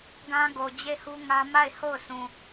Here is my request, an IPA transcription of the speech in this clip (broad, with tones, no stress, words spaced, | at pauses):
ɡã˦ ɡo˨d͡ʑe˦˨hu˦ŋä˦ ma˦˨ɪ̯ho˦˨ʊ̯sũ˨